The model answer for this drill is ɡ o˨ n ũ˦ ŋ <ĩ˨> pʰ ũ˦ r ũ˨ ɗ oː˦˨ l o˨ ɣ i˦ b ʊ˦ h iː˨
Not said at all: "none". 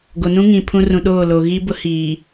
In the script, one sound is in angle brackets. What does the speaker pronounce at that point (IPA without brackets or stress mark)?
ĩ˨